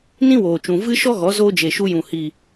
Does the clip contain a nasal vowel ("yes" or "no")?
yes